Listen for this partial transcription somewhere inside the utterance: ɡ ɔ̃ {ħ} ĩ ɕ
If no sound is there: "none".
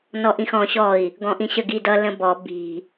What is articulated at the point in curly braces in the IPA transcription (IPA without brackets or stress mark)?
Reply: ʔ